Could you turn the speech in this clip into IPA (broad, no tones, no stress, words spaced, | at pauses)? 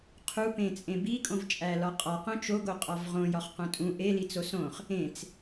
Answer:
qʰupẽt͡sʼẽ bikʼõv t͡ʃʼælɒqʼɒ qõt͡ʃoɡo qʼɒvʁõ jɒχqõtʼũ ʔeli t͡sosõχ | ẽt͡s